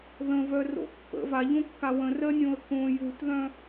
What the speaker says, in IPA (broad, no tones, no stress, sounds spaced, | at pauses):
ð ə̃ v œ r o̰ pː ə̰ v a ʎ õ kː a w ə̃ r ɜ nʲ õ ə̯ k õ j u t ð œ̃